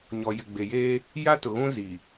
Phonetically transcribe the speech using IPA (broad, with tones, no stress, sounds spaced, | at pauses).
ɲ ɔ˨ j ɪ˨ ɡ͡b e˨ j eː˦ | j a˦ t ʊ˨ ɣ ũ˦ z i˨